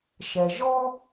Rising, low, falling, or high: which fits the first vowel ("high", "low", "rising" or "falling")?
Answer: low